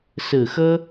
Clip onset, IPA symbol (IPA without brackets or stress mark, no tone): s